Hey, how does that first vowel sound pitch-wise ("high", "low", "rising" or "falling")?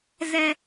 high